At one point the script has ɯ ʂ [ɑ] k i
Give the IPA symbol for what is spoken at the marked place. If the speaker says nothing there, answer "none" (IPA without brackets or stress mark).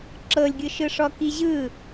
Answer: ɔ